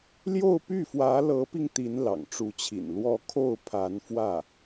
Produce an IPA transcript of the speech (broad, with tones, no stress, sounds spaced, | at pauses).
l j o˥˧ ʊ̯ p y˥˩ f w ä˧˥ l ɤ˧˥ p i˧ ŋ t̪ i˧˥ n l ɑ̰˨˩ ŋ ʈ͡ʂ u˧˥ t͡ɕʰ ḭ˨˩ n l w ɔ˧˥ kʰ o˥˩ ʊ̯ pʰ a˧˥ n f w ä˥˩